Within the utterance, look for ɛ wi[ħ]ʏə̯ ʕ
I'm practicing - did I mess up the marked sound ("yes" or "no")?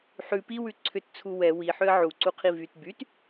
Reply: no